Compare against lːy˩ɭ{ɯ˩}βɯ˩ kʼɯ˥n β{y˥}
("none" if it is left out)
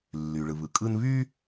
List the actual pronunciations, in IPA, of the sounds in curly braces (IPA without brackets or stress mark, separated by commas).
ɯ˩, y˥